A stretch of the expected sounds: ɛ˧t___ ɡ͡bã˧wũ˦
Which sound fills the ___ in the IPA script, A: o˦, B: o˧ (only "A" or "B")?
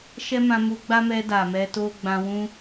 A